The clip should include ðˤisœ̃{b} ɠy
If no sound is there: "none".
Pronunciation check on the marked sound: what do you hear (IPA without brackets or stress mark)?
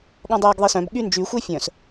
b